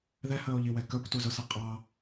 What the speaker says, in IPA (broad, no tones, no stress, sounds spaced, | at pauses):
ð ɛ h əː o̯ ʎ i w ɛ k ə˞ kʷ t u z ʊ s ʌ qʼ ɑ